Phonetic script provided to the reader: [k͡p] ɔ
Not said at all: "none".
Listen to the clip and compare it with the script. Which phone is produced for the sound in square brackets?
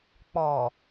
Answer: k͡p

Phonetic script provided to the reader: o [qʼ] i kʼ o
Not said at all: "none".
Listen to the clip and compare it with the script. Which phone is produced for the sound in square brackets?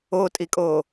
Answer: tʼ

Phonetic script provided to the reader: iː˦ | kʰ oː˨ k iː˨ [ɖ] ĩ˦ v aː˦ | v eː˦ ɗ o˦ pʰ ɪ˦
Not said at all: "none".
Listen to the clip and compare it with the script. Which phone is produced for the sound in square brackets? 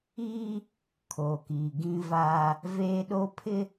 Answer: ɡ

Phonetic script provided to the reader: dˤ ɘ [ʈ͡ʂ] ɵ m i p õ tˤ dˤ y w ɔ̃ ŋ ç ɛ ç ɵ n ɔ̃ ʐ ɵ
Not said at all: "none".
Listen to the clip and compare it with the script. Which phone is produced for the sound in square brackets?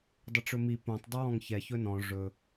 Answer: ʈ͡ʂ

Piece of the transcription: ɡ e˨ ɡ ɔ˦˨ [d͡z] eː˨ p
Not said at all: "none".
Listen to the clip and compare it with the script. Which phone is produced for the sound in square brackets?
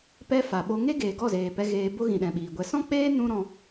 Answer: z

